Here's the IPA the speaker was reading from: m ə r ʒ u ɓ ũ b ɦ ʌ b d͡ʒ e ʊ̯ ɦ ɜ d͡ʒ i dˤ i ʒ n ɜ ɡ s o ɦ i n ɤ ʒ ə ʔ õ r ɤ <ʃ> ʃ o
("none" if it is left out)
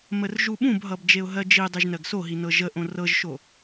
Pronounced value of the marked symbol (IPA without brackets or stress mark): ʒ